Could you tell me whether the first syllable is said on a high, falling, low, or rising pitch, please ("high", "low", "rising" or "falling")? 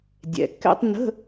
low